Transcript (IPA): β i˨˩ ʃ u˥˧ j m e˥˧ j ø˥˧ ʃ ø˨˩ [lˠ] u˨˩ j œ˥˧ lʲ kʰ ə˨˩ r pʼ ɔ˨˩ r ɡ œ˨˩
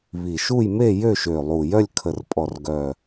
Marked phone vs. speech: correct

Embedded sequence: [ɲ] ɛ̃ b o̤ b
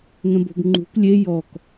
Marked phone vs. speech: incorrect: ŋ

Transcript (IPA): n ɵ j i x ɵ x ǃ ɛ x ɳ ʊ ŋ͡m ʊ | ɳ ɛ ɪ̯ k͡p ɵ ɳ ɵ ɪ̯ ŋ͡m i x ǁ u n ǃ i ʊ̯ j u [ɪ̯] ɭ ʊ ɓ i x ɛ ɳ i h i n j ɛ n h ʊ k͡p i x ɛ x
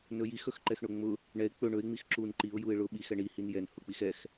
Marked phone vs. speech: correct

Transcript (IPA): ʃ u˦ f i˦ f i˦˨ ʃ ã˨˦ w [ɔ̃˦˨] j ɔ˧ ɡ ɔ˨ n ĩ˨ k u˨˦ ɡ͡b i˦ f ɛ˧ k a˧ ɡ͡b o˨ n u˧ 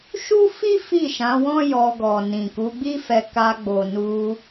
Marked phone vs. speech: incorrect: ɔ̃˦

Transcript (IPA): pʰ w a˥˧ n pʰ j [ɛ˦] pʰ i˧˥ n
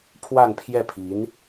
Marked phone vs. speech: incorrect: ɛ˥˩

